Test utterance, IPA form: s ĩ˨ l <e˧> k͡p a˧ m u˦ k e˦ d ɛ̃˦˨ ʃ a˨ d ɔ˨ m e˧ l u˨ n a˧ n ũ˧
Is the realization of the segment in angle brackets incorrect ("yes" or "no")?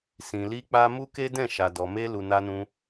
yes